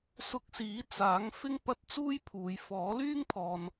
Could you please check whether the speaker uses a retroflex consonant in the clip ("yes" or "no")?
no